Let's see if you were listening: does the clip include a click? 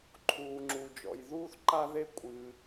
yes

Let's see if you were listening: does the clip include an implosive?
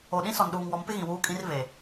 yes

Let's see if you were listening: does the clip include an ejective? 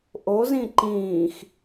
no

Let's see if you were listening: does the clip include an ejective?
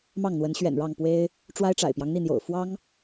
no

